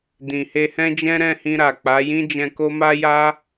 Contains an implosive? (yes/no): no